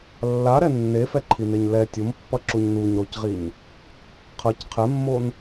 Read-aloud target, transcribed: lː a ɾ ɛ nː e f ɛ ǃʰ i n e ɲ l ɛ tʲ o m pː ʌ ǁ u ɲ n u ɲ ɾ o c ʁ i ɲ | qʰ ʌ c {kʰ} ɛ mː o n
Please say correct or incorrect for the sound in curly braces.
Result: incorrect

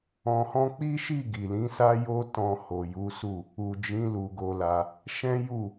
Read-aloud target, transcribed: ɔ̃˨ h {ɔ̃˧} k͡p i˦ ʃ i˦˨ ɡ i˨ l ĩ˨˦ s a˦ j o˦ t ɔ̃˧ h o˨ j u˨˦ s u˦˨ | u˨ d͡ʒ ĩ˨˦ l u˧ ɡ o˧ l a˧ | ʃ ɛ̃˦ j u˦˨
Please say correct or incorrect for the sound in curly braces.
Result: correct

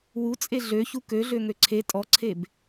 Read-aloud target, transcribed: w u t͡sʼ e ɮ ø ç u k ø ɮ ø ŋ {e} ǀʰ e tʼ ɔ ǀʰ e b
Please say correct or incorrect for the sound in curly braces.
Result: incorrect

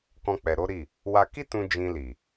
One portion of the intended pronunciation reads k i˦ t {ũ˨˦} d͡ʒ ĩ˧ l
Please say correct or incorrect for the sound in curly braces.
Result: incorrect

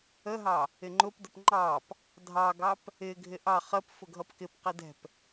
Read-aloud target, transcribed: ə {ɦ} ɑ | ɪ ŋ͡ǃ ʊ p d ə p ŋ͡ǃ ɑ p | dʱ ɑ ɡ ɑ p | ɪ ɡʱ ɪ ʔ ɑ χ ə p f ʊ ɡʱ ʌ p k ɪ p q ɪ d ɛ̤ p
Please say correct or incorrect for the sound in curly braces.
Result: correct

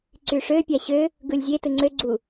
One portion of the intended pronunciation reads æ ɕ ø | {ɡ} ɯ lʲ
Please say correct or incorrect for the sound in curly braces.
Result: correct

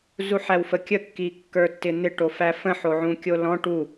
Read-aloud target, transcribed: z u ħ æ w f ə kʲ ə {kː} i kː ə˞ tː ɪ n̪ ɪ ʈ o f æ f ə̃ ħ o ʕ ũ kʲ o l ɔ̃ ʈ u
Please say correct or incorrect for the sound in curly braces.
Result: correct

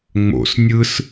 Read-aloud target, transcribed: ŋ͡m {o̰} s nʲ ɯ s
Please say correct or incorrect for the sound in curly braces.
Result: correct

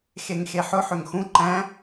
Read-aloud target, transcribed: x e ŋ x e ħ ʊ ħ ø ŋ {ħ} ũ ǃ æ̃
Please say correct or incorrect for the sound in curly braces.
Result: incorrect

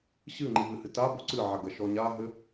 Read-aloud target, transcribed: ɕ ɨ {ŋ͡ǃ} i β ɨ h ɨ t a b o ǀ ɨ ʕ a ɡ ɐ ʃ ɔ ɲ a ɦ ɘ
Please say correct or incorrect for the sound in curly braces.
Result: correct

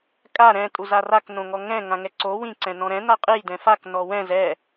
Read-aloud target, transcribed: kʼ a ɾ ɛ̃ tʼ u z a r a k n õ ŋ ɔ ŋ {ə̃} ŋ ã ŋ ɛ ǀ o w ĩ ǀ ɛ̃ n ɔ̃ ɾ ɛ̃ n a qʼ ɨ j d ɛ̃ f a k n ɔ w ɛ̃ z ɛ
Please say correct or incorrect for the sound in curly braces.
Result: incorrect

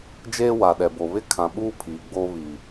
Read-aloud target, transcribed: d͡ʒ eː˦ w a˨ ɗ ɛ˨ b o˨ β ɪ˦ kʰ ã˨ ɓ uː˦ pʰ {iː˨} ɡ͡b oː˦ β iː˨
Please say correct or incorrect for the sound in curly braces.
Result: correct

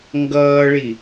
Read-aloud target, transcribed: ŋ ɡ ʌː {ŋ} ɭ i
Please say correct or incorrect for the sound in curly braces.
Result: incorrect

